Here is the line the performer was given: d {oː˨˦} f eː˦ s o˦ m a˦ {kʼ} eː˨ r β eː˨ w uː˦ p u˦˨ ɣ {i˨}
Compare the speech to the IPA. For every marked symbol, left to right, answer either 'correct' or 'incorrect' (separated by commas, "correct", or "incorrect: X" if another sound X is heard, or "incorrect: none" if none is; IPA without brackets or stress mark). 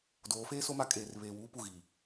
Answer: correct, correct, incorrect: iː˨